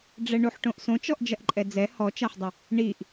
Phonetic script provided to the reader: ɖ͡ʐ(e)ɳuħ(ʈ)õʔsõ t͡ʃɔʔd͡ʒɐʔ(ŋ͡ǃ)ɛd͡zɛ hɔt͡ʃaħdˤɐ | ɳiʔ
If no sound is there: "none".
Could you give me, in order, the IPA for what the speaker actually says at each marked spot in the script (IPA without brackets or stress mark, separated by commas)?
ɛ, ʈ, ǃʼ